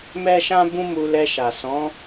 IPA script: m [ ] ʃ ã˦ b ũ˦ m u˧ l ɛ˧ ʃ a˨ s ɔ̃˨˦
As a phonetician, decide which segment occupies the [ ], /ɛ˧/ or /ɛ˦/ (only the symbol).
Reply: ɛ˦